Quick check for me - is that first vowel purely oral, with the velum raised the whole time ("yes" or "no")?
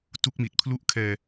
yes